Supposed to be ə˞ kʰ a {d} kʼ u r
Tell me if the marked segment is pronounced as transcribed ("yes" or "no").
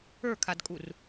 yes